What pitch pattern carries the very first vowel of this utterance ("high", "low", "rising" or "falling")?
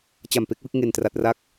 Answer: low